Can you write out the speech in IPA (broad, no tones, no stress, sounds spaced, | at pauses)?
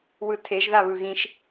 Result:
w ɯ tʰ e ʒ ð a β ɯ ɣ ĩ ʃ